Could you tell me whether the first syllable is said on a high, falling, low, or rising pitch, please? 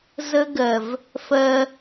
high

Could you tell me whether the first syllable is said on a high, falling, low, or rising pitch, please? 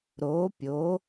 rising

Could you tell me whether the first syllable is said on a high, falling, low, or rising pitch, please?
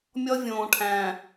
high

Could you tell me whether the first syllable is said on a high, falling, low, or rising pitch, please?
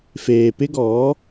low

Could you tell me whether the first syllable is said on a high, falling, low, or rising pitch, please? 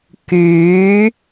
rising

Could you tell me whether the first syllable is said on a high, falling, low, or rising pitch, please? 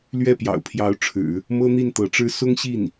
falling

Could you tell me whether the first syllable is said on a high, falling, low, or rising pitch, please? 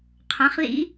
rising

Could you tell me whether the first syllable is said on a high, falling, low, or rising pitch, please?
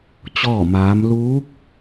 falling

